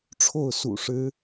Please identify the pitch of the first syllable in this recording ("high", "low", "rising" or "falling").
falling